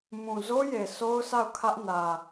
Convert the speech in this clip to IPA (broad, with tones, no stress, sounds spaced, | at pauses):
m ũ˨ z o˦ j e˨ s o˦ ʊ̯ s a˦˨ ʊ̯ kʰ ä˦ ʔ n ä˨